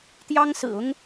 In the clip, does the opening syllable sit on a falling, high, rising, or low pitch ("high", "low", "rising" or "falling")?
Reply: high